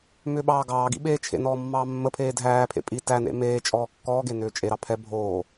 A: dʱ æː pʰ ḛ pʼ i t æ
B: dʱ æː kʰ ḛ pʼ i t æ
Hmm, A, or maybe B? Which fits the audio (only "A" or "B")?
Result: A